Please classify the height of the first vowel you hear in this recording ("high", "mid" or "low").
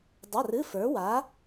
low